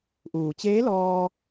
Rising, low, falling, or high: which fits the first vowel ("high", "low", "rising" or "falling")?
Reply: low